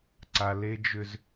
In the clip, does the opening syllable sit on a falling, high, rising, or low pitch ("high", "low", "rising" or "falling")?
high